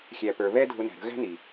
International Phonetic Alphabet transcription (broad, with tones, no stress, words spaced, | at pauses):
xʲæ˨pə˞˨ βɛ˦dʱʊ˧ næ̤˨ɾə̤˧ɣæ̤˦ ni˨